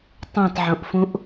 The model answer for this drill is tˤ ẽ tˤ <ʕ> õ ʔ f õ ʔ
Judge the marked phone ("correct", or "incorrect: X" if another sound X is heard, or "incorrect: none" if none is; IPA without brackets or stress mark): correct